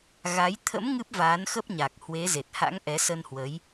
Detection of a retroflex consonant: absent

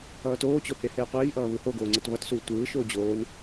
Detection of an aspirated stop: absent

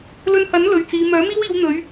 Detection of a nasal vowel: absent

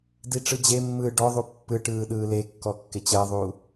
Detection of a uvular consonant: absent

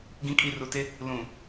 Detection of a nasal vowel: present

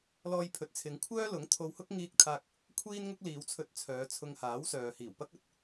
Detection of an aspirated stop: present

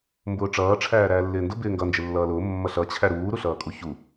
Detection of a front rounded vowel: absent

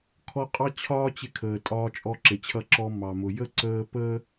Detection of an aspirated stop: present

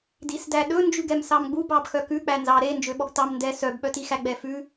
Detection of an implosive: present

